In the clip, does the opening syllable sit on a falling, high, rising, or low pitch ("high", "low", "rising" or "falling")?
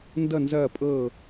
falling